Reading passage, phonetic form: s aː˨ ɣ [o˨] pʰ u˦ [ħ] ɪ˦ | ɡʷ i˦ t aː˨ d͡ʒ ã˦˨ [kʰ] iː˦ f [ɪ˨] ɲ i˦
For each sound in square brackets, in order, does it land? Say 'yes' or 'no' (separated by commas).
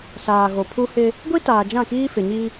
yes, no, no, yes